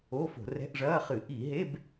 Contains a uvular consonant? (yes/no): yes